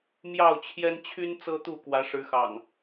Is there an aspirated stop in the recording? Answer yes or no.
yes